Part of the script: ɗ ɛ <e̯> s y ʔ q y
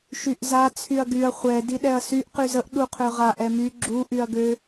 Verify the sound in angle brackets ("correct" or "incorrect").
incorrect